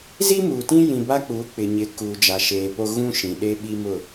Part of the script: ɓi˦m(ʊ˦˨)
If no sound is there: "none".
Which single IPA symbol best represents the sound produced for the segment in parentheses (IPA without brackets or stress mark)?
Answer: ʊ˦˨